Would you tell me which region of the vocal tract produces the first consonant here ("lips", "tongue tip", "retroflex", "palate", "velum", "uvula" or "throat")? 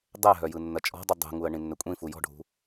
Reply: tongue tip